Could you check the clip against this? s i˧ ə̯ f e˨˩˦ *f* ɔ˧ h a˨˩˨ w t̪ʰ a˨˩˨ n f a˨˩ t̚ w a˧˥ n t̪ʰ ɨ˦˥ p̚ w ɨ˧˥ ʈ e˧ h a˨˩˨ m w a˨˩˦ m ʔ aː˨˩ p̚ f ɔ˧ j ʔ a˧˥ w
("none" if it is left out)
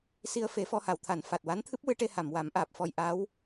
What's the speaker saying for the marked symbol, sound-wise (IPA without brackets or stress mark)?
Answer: f